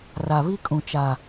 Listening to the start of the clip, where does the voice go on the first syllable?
low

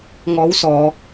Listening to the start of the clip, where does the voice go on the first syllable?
rising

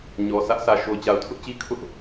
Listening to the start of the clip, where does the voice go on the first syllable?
low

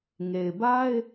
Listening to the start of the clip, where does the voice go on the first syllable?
low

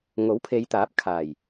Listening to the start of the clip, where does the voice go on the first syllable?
rising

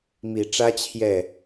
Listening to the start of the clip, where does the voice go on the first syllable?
low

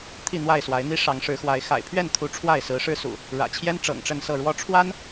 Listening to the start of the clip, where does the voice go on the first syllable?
falling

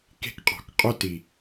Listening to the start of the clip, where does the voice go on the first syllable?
high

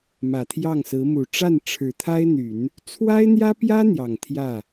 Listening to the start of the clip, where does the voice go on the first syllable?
low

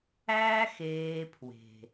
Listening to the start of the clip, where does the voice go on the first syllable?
high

